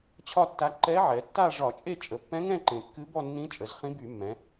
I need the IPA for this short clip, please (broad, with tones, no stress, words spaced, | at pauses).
t͡ɕʰɒ˥˧tːa˧˥ ǃɛ˧˥ʕɛ˩˧tːa˥˧ ʐɒ˧˩˧t͡ʃʼe˥˧ t͡ʃʼə˩˧pːɛ̃˧˥ŋɛ̃˥˧ǃẽ˩ kːɨ˧˥bɔ˥˧nːĩ˧˥t͡ʃʼə˩˧z χĩ˧˥by˧˩˧mːɛ̃˩˧